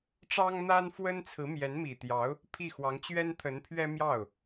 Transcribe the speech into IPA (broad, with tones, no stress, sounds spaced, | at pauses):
ʈ͡ʂ ɑ˥ ŋ n̪ a˥ n f w ə˥ n t͡sʰ ɹ̩˧˥ m j ɛ˧˥ n m i˨˩ t̪ j ɑ˧˥ ʊ̯ | pʰ i˥˩ x w ɑ˧˥ ŋ t͡ɕ ɥ ɛ˥ n t̪ʰ ə˧˥ n pʰ ɥ ɛ˥ m j ɑ˥˩ ʊ̯